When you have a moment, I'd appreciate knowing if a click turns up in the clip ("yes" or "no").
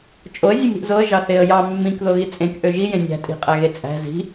no